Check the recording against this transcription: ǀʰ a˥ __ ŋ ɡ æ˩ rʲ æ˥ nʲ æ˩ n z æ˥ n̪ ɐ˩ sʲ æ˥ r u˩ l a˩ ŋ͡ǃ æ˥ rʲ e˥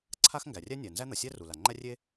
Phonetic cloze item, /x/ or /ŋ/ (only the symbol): x